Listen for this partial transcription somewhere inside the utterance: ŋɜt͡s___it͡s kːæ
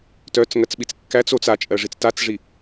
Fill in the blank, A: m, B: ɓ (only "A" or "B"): B